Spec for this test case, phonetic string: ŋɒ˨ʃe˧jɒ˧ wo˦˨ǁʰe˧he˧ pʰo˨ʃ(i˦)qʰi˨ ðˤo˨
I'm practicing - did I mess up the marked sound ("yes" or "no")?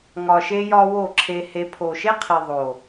yes